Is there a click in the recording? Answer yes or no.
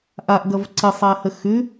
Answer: yes